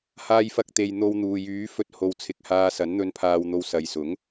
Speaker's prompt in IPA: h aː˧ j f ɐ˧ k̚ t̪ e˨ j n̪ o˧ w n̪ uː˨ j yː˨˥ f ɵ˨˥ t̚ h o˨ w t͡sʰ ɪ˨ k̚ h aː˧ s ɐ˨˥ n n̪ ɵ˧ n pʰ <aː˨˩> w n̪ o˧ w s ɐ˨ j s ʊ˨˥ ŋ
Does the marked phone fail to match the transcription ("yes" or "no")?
yes